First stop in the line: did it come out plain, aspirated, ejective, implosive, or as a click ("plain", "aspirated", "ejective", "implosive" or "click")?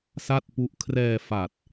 plain